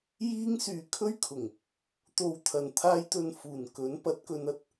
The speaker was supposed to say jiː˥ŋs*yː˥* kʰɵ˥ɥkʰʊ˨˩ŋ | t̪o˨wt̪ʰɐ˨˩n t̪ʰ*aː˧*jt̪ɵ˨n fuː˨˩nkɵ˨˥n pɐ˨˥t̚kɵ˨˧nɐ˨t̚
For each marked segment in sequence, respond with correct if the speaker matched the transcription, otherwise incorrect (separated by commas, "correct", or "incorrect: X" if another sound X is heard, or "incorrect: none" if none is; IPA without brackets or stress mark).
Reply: incorrect: yː˨, correct